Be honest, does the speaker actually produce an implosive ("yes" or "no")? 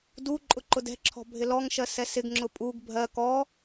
no